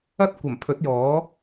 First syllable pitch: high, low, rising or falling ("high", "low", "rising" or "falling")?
high